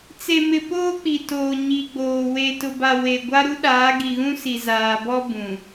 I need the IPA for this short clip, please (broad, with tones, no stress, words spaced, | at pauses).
t͡se˨mɪ˨ poː˦k͡pi˨toː˨ ɲi˨ɡ͡boː˨ we˨tʊ˨ba˨ we˨ɡʷa˦ ɾu˦ɗaː˨˦ɡi˨ɣũ˦ si˨zaː˨bɔ˦ bũ˨